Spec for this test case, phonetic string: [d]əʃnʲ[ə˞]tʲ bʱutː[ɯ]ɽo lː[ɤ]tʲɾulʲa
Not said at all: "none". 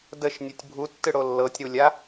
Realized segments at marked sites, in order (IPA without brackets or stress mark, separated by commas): d, ə˞, ɯ, ɤ